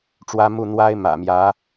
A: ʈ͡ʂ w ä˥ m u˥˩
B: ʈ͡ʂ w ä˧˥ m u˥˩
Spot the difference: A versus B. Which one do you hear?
A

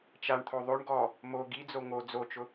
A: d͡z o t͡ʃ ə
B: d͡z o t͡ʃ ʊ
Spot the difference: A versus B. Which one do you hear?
B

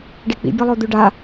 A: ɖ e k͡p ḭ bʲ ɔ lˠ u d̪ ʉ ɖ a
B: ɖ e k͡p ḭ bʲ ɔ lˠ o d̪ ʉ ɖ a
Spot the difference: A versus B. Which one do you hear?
B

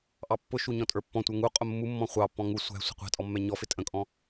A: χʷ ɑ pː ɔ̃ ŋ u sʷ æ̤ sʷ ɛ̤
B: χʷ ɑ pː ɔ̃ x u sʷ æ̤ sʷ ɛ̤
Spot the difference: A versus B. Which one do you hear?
A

